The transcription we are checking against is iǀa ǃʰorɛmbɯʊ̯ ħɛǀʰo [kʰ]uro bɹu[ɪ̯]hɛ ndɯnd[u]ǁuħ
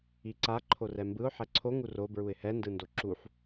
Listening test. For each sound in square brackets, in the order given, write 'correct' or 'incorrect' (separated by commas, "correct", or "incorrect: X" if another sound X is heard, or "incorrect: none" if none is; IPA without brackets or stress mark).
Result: incorrect: ŋ, correct, incorrect: o